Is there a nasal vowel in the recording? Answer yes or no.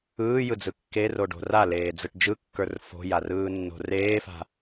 no